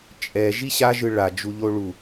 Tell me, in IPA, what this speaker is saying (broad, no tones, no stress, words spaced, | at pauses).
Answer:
t͡ʃʼɛ ʒiɕa ʒɯɭa d͡ʒuʎoɭu